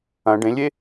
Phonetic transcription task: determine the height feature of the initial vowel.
low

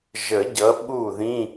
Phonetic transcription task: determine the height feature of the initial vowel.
mid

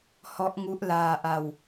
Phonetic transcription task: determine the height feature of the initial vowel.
mid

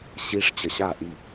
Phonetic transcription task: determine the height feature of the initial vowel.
high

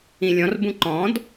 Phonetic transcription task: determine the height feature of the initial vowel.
high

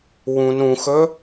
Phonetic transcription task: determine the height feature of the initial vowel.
high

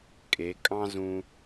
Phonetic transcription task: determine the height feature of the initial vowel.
mid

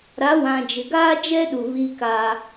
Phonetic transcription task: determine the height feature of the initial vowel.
low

